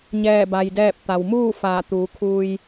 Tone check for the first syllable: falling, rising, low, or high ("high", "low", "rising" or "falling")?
falling